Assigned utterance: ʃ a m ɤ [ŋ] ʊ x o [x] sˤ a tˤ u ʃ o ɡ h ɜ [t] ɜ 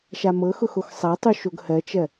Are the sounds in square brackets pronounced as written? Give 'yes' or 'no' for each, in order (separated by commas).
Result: no, yes, no